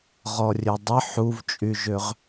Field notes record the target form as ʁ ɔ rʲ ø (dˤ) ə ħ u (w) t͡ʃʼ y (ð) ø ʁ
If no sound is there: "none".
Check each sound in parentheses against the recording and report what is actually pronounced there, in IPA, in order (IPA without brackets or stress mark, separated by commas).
dˤ, v, ʒ